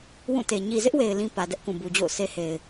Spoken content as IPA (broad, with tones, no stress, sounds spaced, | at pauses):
w ũ˦˨ t e˨ ɲ i˨ z ɪ˦ ʔ w e˨ ɪ̯ l ĩ˦ p ä˨ d ɛ˦ ʔ k ũ˨ b u˨ d͡ʑ o̰˦˨ ʊ̯ sʰ e˦ h e˨ ɪ̯